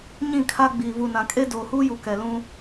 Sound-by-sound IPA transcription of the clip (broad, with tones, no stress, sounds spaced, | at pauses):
ɲ ĩ˦˨ kʰ a˦ ɡ͡b iː˨ v u˨ n ã˨ kʼ e˦ d oː˨ h uː˦ j u˨ k ɛ˨ l ũ˦